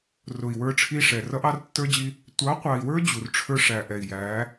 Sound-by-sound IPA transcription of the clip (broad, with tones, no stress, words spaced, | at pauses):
rʊ˨i̯ wə˞˦ʈ͡ʂʰi˦ʂɛ˨ rʌ˦ʔɑ˦rtːə˞˦d͡ʑi˦ | tʷɑ˨˦qʷɑ˨i̯wə˞˦ d͡ʑu˨rʈ͡ʂʰə˞˦ʂæ˨ʔɛ˨i̯ jæ˨˦